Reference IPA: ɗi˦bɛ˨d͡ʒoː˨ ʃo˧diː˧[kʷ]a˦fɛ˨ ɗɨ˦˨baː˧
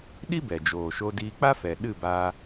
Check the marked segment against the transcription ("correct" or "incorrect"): incorrect